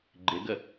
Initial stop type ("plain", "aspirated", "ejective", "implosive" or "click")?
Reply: click